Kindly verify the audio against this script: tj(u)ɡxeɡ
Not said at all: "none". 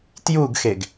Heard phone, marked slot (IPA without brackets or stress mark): u